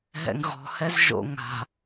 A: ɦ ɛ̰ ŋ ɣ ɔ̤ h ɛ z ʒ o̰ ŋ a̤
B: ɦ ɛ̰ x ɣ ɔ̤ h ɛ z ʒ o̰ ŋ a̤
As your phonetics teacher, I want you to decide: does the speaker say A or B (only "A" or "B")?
A